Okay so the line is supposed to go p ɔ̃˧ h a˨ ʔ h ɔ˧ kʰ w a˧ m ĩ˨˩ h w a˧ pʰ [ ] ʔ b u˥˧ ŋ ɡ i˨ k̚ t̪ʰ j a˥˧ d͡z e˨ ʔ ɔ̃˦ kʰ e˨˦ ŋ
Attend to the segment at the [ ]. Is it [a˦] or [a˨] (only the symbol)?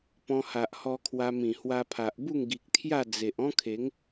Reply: a˨